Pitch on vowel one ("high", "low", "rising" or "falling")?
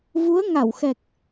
rising